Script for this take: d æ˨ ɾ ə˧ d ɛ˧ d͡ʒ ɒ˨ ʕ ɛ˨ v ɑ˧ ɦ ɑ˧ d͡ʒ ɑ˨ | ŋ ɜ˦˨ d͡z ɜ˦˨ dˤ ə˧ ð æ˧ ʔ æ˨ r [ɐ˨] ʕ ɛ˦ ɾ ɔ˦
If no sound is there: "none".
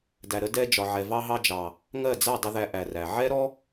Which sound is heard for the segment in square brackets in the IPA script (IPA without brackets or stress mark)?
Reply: æ˨